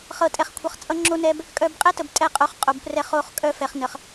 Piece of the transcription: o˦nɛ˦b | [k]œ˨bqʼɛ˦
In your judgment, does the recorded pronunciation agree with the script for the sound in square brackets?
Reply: no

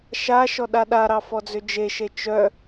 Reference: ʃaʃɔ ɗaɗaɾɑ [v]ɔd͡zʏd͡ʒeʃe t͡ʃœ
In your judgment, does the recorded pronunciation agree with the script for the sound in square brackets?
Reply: no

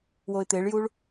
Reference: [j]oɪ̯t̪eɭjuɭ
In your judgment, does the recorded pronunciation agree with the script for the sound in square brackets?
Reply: no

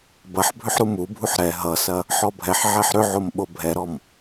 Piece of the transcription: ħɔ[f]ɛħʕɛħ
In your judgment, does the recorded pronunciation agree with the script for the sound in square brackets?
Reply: no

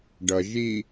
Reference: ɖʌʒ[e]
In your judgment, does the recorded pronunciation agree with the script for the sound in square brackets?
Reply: no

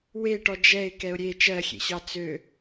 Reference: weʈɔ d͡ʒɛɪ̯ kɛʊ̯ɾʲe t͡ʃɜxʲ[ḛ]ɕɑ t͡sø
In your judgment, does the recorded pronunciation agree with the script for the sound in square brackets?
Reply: yes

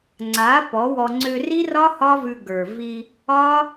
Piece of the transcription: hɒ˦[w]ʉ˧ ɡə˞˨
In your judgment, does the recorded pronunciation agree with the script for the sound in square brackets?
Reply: no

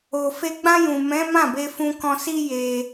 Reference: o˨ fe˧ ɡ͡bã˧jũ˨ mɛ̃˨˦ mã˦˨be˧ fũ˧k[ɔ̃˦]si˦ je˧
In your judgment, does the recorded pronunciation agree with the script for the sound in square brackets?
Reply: no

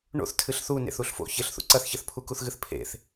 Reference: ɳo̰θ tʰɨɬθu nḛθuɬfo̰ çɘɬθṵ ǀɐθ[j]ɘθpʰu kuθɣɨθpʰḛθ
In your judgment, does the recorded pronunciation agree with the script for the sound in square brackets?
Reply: no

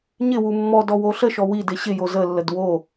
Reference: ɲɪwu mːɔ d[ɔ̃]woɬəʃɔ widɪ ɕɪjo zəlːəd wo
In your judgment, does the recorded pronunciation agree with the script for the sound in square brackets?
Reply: no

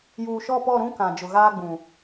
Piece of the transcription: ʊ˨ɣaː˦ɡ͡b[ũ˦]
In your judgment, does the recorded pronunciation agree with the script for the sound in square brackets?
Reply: no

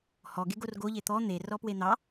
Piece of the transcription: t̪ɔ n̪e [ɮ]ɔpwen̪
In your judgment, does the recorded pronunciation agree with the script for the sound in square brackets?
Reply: no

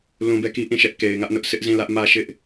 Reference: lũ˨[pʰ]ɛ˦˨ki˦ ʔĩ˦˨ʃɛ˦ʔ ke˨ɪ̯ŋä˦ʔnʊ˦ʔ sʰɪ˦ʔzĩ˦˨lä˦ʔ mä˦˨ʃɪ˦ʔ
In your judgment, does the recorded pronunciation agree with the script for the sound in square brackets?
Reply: no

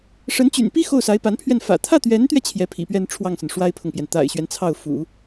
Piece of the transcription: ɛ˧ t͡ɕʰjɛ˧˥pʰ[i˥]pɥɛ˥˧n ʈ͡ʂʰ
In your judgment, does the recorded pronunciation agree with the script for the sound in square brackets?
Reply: no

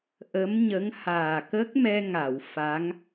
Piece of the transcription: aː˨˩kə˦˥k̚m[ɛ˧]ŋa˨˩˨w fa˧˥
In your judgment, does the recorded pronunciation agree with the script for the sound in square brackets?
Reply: yes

